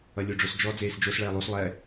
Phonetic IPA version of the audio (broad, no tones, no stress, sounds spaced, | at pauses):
ʌ lʲ o ɖ͡ʐ o s d͡ʒ ɔ d͡z eː s d͡ʒ o s ɭ ɛː lˠ u s lˠ ɛ